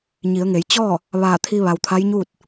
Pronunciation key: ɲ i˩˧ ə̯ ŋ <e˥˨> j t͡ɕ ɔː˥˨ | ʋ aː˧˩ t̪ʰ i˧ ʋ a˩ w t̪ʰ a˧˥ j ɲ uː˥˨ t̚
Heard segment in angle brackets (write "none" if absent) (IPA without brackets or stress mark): e˩˧